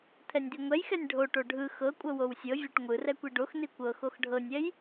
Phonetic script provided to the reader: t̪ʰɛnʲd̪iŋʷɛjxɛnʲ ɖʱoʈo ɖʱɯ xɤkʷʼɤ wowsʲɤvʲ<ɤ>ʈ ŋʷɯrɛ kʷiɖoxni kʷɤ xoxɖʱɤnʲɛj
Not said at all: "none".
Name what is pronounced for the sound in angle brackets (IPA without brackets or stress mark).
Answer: ɤ